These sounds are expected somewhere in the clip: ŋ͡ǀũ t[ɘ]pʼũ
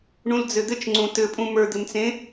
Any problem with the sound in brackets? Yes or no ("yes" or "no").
no